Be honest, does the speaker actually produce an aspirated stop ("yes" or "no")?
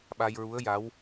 no